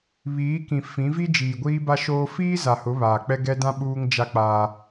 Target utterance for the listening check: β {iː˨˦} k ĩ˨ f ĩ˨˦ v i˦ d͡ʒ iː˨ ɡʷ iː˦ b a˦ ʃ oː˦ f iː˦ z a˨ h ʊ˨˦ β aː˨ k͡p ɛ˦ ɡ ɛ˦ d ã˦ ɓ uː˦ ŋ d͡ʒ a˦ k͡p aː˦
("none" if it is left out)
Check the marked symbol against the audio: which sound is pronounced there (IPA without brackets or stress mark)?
iː˨˦